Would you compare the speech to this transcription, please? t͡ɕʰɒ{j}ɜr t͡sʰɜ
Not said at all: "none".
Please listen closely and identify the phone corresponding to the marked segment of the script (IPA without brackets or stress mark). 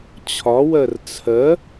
w